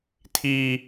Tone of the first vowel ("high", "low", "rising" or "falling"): high